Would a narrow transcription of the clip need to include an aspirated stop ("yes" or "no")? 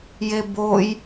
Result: no